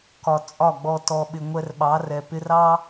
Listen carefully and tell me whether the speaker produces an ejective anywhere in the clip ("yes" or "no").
yes